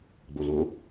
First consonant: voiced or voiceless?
voiced